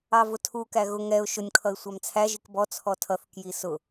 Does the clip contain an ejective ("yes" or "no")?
no